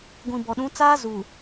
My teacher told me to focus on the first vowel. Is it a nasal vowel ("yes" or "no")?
yes